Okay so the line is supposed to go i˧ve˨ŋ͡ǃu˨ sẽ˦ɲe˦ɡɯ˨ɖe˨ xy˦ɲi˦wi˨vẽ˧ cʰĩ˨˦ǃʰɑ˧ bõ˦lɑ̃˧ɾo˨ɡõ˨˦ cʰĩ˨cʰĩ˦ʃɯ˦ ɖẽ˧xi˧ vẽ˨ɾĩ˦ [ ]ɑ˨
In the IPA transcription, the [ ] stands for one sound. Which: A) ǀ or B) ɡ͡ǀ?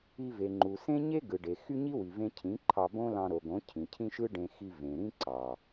A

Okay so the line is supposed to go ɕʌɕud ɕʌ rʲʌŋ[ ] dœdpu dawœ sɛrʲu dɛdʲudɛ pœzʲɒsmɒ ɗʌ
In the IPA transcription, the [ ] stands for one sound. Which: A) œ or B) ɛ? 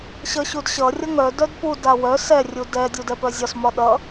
A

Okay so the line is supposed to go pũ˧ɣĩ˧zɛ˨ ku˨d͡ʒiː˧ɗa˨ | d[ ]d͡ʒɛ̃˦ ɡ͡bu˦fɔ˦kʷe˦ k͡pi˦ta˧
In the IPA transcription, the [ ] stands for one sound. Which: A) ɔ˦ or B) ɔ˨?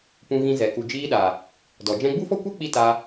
B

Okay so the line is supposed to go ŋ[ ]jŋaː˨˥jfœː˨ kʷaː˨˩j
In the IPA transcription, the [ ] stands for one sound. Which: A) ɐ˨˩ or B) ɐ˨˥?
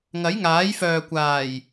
B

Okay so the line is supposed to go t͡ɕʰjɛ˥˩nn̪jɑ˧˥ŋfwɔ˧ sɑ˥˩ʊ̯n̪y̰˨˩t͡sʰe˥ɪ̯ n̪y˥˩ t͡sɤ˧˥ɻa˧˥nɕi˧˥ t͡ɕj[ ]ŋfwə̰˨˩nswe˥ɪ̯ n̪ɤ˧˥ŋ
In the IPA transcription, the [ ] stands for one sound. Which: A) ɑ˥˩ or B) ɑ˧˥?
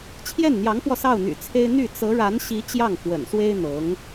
A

